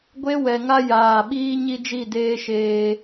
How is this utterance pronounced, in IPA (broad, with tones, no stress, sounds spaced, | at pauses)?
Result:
ɡʷ e˦ w ɛ˨ ŋ a˦ j aː˦˨ ɓ iː˦ ɲ i˦ d͡ʒ i˦˨ d eː˦ ʃ eː˨